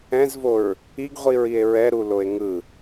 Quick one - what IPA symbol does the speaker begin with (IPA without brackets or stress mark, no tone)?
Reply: ɛ̃